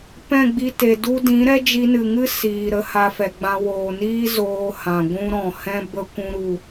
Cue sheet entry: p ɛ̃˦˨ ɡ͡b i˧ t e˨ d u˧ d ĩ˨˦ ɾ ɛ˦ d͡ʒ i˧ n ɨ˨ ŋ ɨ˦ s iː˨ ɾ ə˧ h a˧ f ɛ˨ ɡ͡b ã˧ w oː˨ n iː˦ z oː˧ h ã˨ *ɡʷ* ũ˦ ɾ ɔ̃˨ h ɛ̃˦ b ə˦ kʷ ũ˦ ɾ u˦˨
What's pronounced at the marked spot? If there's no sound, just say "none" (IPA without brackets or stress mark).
ɡʷ